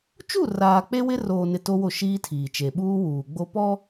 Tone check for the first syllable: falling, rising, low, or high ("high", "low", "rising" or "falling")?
falling